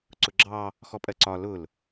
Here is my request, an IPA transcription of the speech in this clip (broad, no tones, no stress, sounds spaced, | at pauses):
ǀ ʊ ɡ͡ǁ ɑ | x ɔ pʼ ɜ ǀ ɒ l ʊ l